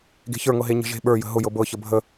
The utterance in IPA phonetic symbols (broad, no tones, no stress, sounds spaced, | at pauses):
ɡ e̤ ç ə˞ ŋ ɤ ɦ e ɲ ə̤ ʒ e̤ ɓ ə˞ j ə̤ ɦ ʊ j ɤ b ɤ ç ə bʱ ə